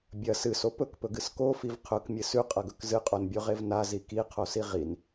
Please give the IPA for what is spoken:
bʲ ɐ s ɨ s o p ɵ k p ɵ ɡ ɨ s k o f i v qʰ ɵ k mʲ ɨ s ʉ qʼ ɐ ɡ ɵ k z ɨ qʼ o n bʲ o ʁ e v n a z i k i qʰ o s i ʁ i n

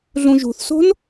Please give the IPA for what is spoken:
ɮ ũ ʒ ṳ θ s o̤ n

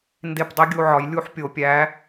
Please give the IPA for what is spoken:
n d e˧˩ p dˤ i˨˥ ɡʲ u˧˩ ʕ ɒ˨˩˦ j lʲ u˥˧ ħ pʲ o˨˩˦ pʲ æ˨˥

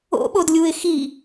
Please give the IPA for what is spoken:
o̰ ɓ o d lʲ u ɪ̯ x i

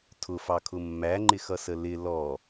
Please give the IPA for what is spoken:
tʰ ʊ f ɑ kʰ ʊ mː æ ŋ͡ǃ ɪ x ʌ s ə l ɪ l ɔ

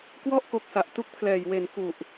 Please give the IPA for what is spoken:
k w ɔ˥˩ ʔ k o˨˩ k̚ s a˨˩ ʔ t u˥˩ k̚ pʰ l ɛː˨˩ j w e˩˦ n k u˨˩ ʔ

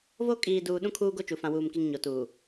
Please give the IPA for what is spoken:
v o˦ kʼ iː˨ d uː˨ ɗ ũ˦ kʰ uː˦ ɡ o˦ t͡ʃ u˨ f ã˨ w uː˨ m k i˨ ŋ ɲ o˨ t uː˨

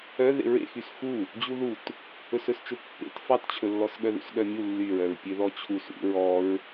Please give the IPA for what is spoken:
œ ð ḛ ɹ ḛ x y s x u | d͡ʑ u ð u t | ɵ s ɵ s t͡ʃ ɵ pː ḛ t f ɑ t t͡ɕʰ ɵ lː ɔ s ɠ œ ð ṵ s ɠ œ mʲ u lː y ɹ œ ɹ pʲ ø ð ɔ t͡ɕʰ u s ṵ ɹ ɔ ɹ

